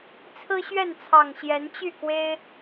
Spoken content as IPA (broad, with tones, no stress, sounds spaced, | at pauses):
t͡sʰ ɹ̩˦ ɕ ɥ ɛ˥˨ n t͡sʰ ɑ˨˩ ŋ ɕ j ɛ˨˦ n t͡ɕ y˥˨ k w e˦ ɪ̯